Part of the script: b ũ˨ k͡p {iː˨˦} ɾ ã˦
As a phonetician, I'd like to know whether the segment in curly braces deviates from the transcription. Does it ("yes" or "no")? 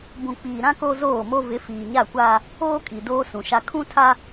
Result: yes